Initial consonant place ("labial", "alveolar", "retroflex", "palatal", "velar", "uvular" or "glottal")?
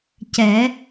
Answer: palatal